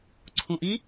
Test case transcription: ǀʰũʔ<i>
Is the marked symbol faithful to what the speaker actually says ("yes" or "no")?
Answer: yes